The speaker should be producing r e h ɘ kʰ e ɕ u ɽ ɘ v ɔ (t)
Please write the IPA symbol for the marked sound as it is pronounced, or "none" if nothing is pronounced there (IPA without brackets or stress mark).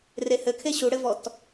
t